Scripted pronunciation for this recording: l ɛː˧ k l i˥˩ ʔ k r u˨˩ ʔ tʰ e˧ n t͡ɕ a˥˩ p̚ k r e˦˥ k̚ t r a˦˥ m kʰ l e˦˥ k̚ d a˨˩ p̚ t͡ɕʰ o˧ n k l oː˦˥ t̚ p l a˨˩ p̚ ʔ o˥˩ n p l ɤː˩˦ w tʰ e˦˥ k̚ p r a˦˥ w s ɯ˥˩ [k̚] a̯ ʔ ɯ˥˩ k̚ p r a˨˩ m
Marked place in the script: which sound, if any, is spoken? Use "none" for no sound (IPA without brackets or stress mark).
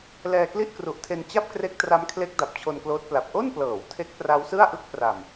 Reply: none